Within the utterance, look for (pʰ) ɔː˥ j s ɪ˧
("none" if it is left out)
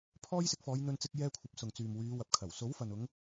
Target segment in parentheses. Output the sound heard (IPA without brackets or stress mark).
pʰ